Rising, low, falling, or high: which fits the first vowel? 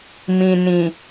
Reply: low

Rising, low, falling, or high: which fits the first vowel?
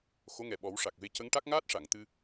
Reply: rising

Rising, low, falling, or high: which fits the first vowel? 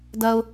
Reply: high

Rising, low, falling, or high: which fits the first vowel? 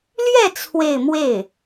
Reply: falling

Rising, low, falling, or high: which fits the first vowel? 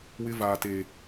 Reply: high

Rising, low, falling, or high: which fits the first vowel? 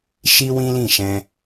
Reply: high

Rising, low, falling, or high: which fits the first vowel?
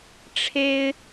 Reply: high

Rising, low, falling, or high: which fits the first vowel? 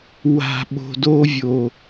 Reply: low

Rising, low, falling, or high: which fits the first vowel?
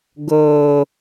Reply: low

